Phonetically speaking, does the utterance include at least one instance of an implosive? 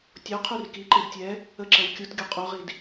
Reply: no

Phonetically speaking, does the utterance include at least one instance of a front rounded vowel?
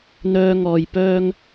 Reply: yes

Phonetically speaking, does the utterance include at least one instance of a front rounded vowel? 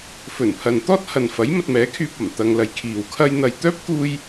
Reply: yes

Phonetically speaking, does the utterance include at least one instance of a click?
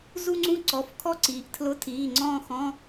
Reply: yes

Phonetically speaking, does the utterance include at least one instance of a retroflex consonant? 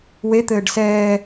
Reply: yes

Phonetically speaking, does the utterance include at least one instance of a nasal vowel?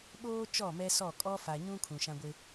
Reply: yes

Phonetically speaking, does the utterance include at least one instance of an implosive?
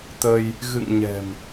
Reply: no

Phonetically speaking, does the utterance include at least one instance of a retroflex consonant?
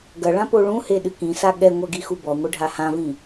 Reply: yes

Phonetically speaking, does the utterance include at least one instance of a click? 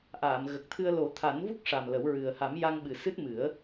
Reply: no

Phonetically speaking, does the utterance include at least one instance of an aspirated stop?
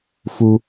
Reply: no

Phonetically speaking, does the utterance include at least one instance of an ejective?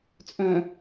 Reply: yes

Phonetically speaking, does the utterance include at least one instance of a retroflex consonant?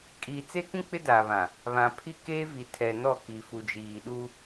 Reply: no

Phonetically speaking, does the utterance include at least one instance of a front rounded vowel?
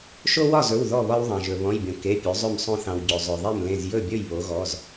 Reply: yes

